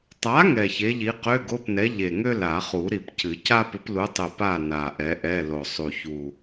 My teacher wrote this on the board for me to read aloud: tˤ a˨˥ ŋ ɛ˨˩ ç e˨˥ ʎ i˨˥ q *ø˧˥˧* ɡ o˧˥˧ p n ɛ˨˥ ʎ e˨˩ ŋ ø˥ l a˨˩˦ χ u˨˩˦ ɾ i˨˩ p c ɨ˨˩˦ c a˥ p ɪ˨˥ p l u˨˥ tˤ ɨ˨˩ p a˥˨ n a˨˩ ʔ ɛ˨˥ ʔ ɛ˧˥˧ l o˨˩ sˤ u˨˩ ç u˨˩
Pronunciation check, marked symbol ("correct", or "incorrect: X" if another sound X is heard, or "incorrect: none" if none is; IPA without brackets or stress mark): correct